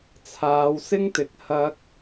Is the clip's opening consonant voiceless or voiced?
voiceless